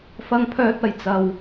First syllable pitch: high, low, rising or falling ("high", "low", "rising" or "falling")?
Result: high